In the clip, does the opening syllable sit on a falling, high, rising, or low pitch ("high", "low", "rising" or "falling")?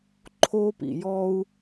high